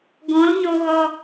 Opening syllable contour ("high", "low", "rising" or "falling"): rising